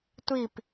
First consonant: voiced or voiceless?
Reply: voiceless